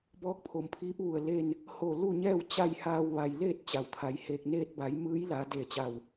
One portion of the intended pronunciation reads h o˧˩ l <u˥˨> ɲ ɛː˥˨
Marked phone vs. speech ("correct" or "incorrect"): correct